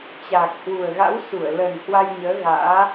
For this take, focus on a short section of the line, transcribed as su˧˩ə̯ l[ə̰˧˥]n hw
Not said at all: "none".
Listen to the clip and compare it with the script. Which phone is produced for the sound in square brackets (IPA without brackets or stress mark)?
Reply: ə˨˩